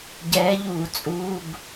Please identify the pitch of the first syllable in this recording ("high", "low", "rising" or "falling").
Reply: rising